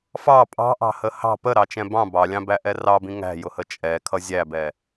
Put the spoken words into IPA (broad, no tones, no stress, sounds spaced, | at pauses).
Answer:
f ɑ pʼ ɑ̤ ʔ ɑ̤ h ə h ɑ̤ p ə ɾ ɑ t͡ʃ ɛ̃ b ɑ̃ b ɑ lʲ ɑ̃ b æ ʔ ɛ r ɑ b ĩ ŋ æ̤ j ʊ h ə t͡ʃʼ ɛ kʰ ʌ zʲ æ b ɛ